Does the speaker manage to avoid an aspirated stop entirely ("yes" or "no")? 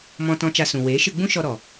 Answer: yes